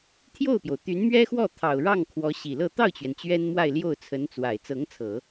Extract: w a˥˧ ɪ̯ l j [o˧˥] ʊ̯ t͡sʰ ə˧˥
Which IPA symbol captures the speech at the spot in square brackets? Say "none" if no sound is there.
o˥˩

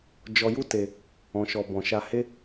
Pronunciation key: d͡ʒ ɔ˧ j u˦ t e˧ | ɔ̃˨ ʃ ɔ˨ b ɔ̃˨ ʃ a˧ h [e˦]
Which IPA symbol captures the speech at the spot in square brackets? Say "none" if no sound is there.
e˦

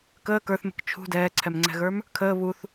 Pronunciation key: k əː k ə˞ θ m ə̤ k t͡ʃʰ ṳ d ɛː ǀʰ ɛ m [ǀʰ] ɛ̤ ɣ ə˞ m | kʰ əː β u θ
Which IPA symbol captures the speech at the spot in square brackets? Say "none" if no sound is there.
ŋ͡ǀ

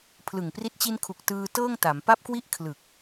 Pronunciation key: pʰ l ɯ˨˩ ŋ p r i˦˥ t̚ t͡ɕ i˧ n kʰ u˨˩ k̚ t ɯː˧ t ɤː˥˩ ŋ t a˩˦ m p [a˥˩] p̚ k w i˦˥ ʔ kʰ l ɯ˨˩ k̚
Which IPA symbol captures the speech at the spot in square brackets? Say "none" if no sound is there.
a˦˥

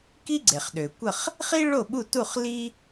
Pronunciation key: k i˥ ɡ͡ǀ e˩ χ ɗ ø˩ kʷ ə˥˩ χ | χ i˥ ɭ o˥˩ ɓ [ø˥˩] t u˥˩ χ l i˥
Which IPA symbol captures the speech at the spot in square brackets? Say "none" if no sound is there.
u˥˩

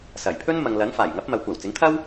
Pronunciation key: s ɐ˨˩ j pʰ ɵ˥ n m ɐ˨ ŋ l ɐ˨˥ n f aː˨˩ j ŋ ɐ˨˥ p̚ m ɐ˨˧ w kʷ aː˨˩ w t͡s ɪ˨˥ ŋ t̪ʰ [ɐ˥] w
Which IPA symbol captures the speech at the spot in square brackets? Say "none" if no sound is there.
ɐ˥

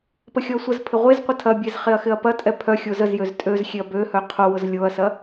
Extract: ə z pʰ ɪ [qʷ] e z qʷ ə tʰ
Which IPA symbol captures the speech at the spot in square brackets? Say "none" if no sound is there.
ʁʷ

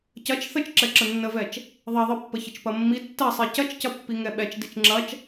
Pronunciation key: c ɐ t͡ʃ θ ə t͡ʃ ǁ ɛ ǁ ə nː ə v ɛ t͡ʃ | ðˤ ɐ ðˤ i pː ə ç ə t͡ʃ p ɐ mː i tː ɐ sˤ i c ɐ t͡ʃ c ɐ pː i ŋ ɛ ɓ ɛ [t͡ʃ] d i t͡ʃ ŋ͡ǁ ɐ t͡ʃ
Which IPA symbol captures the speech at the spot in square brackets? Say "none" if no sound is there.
t͡ʃ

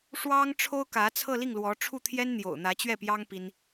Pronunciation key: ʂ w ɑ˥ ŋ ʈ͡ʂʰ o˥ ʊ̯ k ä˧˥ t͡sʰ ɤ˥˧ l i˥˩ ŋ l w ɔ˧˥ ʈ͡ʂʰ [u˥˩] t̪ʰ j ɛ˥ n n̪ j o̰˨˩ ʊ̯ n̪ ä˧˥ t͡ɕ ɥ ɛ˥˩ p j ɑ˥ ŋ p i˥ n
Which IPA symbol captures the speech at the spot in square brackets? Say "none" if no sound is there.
u˥˩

